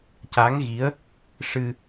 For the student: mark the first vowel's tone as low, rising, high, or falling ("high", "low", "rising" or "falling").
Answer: rising